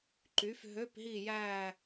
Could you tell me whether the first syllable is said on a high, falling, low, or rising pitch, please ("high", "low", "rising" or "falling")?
rising